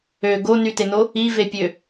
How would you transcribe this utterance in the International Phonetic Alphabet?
ø ɡ o n y t e n o | i v e pʲ ø

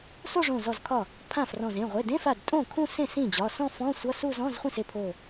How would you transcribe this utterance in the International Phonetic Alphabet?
s o˥˧ ʐ õ˧˩ z ɔ˧˩ z kʰ ɒ˥˩ | pʰ ã˥˩ f r ɔ̃˧˩ z ẽ˩˧˩ ʁʷ e˩˧˩ d ẽ˧˥˧ f a˧˩ d tʼ õ˥˩ kʰ ũ˥˧ s ẽ˥˩ s ĩ˥˩ d͡ʑ ɒ˩˧˩ s ɔ̃˥˧ f ɔ̃˧˥˧ sʷ ʌ˧˥˧ s u˥˧ z ɔ̃˧˥˧ z χʷ ĩ˥˩ s e˥˩ pʰ o˧˩

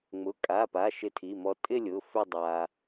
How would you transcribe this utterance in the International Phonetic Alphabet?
ŋ͡m ʊ˩˧˩ kʼ a˩˧˩ p a˩˧˩ ʃ ɪ˧ tʰ i˩˧˩ m ɔ˧ tʼ ɪ˥˧ lʲ ʊ˩˧˩ f ʏ˥˧ dˤ a˧

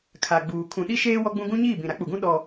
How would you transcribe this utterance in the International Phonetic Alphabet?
kʰ a˨ ɡ͡b uː˨ kʰ ũ˨ ɗ i˦ ʃ eː˦ w ɔ˦ ɡ͡b ũ˦ ɡ ũ˦ ɲ iː˦˨ b ĩ˨ ɾ a˦ k͡p u˨ ɡ ũ˦ ɗ ɔ˦

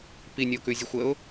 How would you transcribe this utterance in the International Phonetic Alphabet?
p i nʲ ə ʊ̯ k ʉ zʲ ə xʷ ə ʊ̯

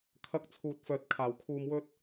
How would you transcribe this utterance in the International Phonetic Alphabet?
kʰ ɐ˨˥ k̚ t͡sʰ uː˨ t̚ f œː˨ t̚ kʰ aː˨˩ w kʰ uː˨ m w ɵ˧ t̚

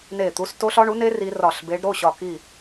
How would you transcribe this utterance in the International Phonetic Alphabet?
n e˦˨ t̪ u˦˥ s t o˦˥ ɬ ɒ˦˥ ɳ u˩˥ n e˦˥ r i˦˥ r ɒ˦˨ ɬ b e˦˥ ɖ ɾ o˩˧˩ ɕ ɒ˦˨ k i˦˨

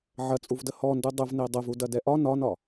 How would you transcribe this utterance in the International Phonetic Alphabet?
ʕ ɐ t͡sʼ u v d ə h ɔ n d u dˤ ʊ v n e dˤ ə v u d ɐ d ɛ ʔ ɒ n ɒ n ɒ

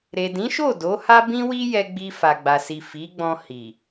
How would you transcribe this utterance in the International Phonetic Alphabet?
ɾ e˨ d ĩ˨˦ ʃ o˦˨ d o˨˦ h a˦ b ĩ˦ w i˦ j ɛ˧ ɡ͡b i˧ f a˨ ɡ͡b a˨ s i˨ f i˨˦ ɡ͡b ɔ̃˧ h i˨

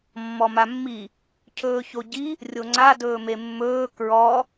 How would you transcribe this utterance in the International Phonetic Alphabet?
mː ɔ m a mː i | cʰ ɵː ç o ɟ i | rʲ o ŋ͡ǀ a d ɵː m e mː ɵː k ɹ ɔ

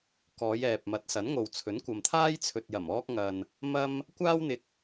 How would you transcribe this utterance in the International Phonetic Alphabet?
k ɔː˨˧ j ɛː˨ p̚ m ɐ˨˥ t̚ s ɐ˨˥ n ŋ o˨ w t͡sʰ ɵ˨˥ n kʷ ɐ˨ m t̪ʰ aː˥ j t͡sʰ ɵ˨ t̚ j ɐ˨˩ m ɔː˧ k̚ ŋ ɐ˨ n | m ɐ˥ m | kʷ aː˥ w n̪ ɪ˧ k̚

